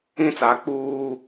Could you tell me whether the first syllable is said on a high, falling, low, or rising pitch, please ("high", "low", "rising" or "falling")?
high